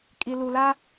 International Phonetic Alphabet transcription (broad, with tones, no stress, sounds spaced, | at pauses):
kʼ i˨ l u˨ l a˦